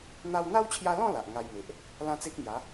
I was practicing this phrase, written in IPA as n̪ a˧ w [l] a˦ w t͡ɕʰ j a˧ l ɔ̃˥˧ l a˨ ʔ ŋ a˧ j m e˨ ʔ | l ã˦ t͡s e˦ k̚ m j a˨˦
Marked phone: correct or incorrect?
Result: incorrect: n̪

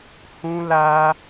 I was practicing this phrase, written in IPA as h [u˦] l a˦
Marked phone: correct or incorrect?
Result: incorrect: ũ˦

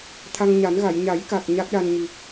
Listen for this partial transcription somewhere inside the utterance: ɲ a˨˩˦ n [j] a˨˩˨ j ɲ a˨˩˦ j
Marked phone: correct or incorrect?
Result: incorrect: ɣ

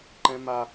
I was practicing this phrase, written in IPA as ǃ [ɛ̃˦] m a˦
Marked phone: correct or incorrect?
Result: correct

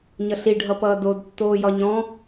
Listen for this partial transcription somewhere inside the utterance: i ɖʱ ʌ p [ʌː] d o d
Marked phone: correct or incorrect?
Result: correct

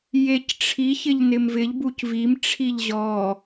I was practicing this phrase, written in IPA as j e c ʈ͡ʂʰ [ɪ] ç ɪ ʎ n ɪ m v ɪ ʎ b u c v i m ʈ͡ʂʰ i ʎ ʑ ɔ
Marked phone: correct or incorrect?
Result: incorrect: i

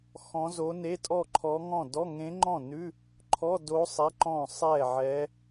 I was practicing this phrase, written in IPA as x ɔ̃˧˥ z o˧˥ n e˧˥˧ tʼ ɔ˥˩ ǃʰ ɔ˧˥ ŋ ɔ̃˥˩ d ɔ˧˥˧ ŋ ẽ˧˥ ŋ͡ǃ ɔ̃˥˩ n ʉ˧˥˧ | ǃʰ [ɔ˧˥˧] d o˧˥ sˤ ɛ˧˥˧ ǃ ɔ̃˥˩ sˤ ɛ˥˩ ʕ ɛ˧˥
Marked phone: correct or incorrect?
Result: correct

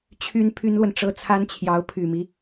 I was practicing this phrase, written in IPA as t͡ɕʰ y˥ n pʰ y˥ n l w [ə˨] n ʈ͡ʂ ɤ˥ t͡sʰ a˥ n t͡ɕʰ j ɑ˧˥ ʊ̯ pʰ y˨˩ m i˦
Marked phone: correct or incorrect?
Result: correct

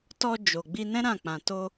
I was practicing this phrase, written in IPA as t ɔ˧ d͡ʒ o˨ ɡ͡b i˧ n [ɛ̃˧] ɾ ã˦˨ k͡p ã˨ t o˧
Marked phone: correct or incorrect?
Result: incorrect: ɛ̃˦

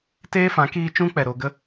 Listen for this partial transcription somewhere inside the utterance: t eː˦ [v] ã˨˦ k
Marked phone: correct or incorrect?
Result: incorrect: f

